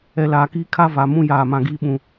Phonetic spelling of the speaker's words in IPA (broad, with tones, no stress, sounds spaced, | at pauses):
ɛ˨ l aː˨ k iː˦ kʰ a˦ v a˨ m ũ˦ j aː˦˨ m ã˦ ɡ iː˦ ɓ ũ˨